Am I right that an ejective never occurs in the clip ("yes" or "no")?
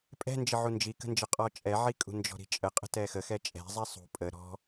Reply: no